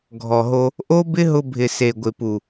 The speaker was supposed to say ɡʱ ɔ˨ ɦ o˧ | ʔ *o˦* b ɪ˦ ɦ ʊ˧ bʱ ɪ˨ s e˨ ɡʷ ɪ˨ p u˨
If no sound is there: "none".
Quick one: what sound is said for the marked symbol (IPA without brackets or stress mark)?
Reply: o˦